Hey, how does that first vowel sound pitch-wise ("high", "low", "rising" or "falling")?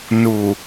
low